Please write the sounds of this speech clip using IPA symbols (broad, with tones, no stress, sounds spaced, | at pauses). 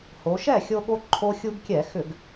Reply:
h o˩˧ ʃ ɛ˥˩ xʲ o˦ ɠ o˦ ǃʰ o˦ xʲ u˦ ɡ kʲ ɛ˧˩˧ x ʏ˧˩˧ ɡ